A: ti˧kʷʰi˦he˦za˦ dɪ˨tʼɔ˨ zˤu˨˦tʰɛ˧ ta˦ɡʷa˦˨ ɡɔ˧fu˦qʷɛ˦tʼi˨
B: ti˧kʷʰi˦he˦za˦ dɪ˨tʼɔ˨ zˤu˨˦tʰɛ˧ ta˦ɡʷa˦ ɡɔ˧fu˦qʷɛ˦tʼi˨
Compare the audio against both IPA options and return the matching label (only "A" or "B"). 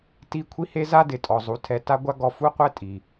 B